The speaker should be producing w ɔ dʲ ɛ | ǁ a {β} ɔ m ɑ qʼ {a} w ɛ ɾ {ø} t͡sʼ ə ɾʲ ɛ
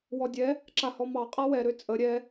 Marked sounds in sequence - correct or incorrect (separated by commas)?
incorrect, correct, correct